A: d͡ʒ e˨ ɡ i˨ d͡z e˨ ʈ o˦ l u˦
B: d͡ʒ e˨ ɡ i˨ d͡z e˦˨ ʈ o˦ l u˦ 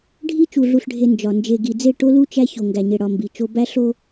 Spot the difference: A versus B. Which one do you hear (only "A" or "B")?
B